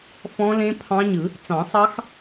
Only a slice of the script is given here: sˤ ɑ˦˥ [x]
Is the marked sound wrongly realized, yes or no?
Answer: no